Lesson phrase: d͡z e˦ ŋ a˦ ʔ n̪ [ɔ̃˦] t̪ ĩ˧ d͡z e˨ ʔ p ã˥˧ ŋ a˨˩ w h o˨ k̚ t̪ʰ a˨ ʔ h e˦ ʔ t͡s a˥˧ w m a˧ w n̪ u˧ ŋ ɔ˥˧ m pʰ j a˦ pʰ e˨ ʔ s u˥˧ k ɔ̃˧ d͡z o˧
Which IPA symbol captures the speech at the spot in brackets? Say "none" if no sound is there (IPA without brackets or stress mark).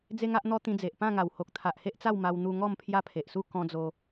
ɔ˦